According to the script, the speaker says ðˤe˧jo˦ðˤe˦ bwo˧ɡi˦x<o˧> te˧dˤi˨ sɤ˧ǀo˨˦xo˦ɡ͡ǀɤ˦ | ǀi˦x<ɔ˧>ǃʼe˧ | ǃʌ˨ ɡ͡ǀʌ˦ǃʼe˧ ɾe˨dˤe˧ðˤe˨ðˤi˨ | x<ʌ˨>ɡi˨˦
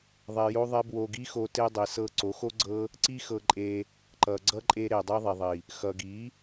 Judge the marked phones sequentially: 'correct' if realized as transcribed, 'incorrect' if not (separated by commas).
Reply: correct, incorrect, correct